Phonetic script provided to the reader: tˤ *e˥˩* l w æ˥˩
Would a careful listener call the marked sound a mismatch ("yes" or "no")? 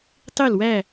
no